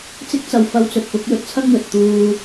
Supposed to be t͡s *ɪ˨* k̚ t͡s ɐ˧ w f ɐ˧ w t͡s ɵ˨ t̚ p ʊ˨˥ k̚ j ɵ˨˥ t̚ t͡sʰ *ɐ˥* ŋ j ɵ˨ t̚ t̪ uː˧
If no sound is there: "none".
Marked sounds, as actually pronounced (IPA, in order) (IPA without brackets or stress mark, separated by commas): ɪ˥, ɐ˥